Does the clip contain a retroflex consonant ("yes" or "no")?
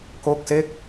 no